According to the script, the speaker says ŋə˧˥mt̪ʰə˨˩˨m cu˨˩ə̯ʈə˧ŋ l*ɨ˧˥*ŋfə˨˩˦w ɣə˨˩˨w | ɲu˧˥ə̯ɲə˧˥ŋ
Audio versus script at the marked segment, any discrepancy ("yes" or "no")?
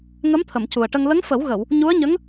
yes